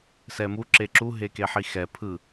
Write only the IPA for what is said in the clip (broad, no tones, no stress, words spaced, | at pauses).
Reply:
sɛmu ǁeǁu ɦekeħixɛ pʰɯ